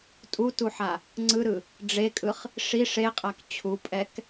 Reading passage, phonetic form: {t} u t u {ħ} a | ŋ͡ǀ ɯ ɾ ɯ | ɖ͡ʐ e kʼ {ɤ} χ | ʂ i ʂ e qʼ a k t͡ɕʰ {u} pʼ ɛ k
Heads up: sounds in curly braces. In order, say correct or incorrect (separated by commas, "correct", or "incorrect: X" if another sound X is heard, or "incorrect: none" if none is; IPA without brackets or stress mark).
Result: incorrect: tʼ, correct, incorrect: ɯ, correct